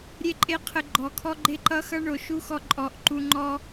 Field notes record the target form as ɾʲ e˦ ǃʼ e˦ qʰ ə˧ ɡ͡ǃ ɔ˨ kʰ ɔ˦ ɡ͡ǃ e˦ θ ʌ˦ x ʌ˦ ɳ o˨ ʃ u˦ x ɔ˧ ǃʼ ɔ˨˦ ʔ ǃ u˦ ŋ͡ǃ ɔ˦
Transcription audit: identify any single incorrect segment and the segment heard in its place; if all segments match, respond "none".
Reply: θ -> ǃ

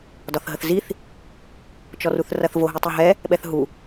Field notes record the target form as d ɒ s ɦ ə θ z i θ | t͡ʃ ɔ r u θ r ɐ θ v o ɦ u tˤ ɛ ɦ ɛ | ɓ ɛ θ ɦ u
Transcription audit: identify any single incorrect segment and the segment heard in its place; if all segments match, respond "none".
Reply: s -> θ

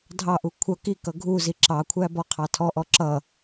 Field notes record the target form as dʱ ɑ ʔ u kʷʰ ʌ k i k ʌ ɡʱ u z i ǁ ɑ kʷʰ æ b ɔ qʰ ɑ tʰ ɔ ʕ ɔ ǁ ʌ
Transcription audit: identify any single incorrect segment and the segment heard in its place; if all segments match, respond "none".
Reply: ʕ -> ʔ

